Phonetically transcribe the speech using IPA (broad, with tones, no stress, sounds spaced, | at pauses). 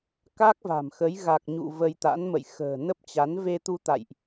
k a˦˥ k̚ v a̤˨˩ m x ə˨˦ j ɣ a˨˩ k̚ ɲ ṵ˧˨ v ə˧ j t̪ a̰˧˥ n m ə̰˧˨ j x ə̤ː˨˩ n ə˦˥ p̚ t͡ɕ a˨˦ n v e˧ t̪ u˧ t̪ a̰˧˨ j ʔ